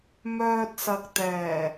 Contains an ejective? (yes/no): no